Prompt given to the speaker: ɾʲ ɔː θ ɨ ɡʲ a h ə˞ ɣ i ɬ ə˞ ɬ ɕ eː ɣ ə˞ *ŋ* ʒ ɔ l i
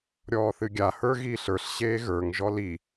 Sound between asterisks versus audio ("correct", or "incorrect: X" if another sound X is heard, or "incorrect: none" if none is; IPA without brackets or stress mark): correct